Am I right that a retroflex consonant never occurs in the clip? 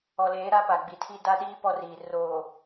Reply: yes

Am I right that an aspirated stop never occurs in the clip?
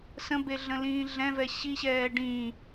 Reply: yes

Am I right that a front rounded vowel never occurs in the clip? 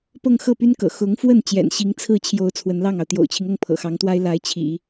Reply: no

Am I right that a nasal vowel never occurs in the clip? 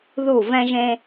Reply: no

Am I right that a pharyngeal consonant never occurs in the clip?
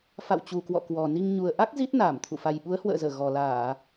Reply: yes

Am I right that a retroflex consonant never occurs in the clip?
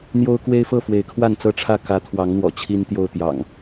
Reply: no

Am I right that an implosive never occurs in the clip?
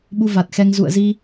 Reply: no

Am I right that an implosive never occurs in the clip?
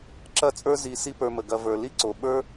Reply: no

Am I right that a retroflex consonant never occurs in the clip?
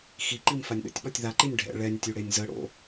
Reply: no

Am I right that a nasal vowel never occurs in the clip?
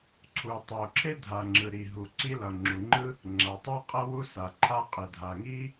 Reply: yes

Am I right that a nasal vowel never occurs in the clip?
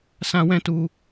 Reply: no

